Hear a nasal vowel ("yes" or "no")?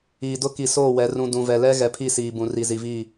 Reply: yes